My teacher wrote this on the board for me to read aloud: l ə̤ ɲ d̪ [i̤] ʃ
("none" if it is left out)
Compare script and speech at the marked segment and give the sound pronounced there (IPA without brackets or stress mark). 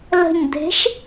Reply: e̤